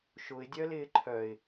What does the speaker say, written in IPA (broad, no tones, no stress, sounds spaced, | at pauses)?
ʃ ʊ ɪ̯ dʲ œ l ɪː ǃʰ œ ɪ̯